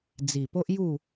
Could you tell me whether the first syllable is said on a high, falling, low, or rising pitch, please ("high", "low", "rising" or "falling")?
low